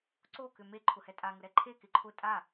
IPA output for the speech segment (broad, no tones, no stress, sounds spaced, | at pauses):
ǀ o k ʏ m e ǃʰ ʊ h ɛ tʼ a ŋ ʊ ɾ ɛ ǃʰ e k ɪ ǃʰ ʊ tʼ a